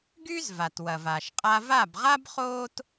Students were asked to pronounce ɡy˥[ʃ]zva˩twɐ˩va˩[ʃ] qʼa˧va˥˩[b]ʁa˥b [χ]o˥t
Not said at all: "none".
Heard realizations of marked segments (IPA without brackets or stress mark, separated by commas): none, ʃ, b, χ